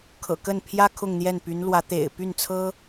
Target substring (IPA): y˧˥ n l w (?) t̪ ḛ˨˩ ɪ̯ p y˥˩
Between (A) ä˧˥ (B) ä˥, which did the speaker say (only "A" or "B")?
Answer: A